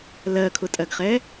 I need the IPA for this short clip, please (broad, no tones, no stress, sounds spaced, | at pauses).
l ɜ kʰ ʊ tʼ ɜ ɡ χ ɛ